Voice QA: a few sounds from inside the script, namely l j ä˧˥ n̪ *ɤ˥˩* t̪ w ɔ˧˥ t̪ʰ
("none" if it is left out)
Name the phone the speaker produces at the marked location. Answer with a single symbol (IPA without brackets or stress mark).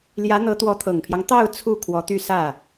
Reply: ɤ˧˥